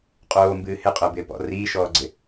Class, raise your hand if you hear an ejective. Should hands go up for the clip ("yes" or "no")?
yes